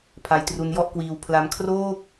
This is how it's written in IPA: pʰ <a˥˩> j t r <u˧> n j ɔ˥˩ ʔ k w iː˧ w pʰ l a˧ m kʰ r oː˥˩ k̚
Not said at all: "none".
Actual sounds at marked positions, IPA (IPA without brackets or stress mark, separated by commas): a˧, u˧